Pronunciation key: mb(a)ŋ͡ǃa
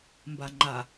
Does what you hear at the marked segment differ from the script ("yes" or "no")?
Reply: no